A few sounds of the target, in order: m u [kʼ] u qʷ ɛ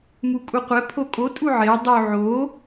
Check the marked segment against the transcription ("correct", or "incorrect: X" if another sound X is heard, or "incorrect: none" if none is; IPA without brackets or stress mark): correct